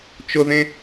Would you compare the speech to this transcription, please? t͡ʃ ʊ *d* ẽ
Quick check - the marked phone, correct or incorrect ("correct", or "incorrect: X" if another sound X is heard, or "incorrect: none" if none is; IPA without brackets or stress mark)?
incorrect: ð